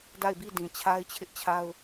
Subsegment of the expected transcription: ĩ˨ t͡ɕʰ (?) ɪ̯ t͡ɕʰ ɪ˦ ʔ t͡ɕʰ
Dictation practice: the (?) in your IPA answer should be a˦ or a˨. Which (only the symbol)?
a˦